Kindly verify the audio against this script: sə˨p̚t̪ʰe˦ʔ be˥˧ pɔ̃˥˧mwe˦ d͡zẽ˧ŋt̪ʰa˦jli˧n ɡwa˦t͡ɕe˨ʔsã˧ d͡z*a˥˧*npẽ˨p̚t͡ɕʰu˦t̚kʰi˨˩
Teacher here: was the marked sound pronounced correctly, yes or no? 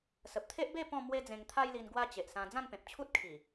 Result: no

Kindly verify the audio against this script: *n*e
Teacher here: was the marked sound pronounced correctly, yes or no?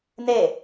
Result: yes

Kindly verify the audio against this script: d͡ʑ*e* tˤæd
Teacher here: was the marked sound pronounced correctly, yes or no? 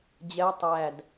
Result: no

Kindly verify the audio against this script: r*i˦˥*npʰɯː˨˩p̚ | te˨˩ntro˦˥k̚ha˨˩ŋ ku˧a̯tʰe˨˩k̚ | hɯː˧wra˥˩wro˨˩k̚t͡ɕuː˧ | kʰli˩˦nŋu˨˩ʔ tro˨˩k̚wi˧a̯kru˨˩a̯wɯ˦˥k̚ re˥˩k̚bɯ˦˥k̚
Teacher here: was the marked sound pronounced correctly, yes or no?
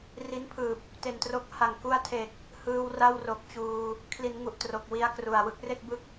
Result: yes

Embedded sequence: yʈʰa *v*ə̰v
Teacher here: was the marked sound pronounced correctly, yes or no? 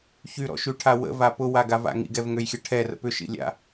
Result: no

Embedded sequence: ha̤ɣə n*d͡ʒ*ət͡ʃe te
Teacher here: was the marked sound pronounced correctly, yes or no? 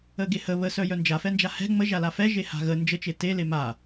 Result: yes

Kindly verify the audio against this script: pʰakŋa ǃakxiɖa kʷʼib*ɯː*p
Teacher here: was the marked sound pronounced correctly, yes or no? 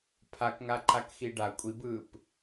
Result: yes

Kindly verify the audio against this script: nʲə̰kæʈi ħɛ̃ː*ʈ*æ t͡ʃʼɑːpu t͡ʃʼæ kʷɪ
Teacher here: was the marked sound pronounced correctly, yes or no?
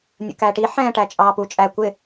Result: yes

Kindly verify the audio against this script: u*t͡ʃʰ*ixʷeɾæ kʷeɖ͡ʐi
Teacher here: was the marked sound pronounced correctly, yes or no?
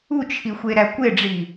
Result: yes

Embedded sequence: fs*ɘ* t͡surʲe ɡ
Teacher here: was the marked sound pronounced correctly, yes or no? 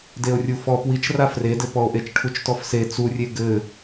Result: no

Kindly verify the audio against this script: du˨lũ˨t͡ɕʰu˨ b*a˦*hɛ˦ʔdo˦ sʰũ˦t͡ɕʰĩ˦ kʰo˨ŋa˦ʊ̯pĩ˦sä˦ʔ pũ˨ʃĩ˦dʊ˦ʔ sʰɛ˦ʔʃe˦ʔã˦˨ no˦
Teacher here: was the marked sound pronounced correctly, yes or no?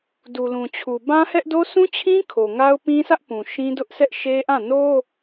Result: no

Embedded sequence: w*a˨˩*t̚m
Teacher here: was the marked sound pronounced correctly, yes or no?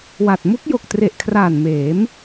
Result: yes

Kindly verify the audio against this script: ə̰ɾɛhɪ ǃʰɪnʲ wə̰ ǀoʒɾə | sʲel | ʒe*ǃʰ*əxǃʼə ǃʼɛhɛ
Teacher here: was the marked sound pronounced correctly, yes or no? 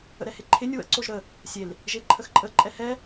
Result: yes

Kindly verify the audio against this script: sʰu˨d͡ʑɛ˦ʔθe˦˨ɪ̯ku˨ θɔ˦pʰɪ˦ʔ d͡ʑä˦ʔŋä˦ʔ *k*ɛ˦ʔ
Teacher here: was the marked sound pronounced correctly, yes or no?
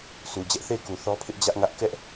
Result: yes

